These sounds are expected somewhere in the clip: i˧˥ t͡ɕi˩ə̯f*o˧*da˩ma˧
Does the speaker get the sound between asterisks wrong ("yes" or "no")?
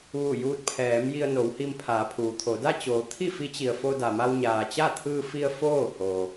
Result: no